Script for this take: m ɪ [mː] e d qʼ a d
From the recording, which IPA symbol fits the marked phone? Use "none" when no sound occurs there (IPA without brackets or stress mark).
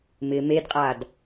m